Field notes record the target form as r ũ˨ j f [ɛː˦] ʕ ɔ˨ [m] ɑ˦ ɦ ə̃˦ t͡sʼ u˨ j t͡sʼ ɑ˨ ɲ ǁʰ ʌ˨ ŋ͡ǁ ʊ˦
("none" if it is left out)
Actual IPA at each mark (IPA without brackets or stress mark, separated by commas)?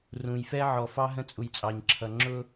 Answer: ɛ˦, f